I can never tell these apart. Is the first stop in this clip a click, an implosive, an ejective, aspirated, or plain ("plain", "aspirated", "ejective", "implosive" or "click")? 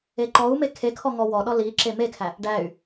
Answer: click